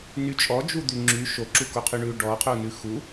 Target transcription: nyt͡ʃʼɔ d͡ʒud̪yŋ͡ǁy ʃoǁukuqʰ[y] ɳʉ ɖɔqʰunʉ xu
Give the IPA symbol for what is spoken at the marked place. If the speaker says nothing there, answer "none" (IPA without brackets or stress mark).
y